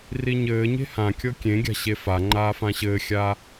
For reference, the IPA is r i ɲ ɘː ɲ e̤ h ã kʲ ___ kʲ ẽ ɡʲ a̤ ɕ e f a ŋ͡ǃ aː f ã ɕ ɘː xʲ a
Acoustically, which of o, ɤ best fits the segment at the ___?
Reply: ɤ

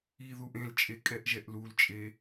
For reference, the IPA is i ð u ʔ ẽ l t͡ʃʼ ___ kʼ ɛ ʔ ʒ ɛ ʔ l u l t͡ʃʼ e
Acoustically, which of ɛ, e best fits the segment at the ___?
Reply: e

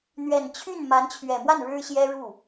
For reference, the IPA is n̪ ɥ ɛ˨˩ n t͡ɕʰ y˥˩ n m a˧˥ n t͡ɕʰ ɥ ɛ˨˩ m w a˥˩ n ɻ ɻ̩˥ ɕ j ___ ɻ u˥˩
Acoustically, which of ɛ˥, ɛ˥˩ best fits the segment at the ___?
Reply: ɛ˥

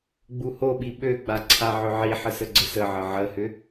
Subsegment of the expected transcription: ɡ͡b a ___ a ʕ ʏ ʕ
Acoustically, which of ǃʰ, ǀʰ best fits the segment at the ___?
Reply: ǀʰ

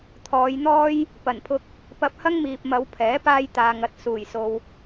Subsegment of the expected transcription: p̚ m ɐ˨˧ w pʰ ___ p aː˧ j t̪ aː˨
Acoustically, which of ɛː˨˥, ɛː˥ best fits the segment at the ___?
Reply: ɛː˨˥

